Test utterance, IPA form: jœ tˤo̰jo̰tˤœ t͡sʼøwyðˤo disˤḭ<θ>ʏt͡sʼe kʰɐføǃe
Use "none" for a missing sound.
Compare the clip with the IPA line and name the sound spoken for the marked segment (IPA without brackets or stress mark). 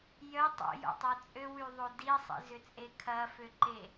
z